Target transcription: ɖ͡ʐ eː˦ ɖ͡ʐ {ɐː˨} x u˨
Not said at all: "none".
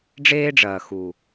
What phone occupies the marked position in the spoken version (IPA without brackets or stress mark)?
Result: ɐː˨